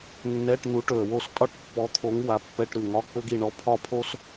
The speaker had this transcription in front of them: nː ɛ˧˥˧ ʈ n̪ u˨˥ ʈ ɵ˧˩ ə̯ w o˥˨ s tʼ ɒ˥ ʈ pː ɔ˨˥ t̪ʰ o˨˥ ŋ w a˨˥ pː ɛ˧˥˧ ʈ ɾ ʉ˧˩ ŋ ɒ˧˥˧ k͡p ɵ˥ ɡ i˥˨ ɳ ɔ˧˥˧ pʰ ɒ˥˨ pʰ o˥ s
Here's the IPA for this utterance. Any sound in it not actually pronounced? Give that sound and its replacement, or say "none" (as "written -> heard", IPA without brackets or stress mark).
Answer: none